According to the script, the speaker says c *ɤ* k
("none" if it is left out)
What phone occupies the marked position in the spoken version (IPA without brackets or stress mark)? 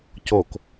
o